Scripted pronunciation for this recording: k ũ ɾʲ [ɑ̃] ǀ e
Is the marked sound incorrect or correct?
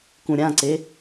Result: incorrect